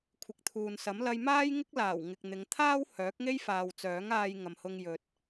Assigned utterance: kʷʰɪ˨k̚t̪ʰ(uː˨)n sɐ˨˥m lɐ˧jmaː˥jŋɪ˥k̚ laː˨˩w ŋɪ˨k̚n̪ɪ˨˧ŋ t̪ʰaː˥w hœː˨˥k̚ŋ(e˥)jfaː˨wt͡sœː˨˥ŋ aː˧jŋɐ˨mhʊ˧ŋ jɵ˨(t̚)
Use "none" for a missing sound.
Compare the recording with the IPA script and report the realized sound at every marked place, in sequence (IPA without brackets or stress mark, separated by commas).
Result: uː˨, e˥, t̚